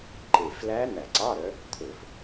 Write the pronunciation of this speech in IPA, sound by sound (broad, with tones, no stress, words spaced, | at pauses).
ǃe˨˩flæ˦˥ n̪æ˧˩˧ǀɑ˧˥˧ɾœ˨˦ | t̪ʰɵ˧˩˧f